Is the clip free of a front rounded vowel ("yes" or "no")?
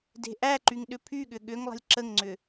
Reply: no